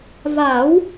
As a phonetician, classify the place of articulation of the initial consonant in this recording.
labial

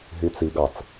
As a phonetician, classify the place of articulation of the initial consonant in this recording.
glottal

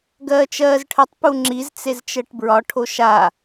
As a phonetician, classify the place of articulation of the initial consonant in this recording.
velar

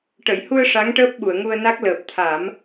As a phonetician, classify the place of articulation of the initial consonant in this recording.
retroflex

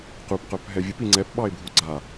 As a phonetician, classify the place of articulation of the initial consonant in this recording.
uvular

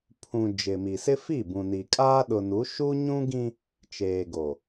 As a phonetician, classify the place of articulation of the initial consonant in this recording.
labial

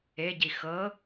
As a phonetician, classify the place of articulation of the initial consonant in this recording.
palatal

